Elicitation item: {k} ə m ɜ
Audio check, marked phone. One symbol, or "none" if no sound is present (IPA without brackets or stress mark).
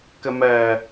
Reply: k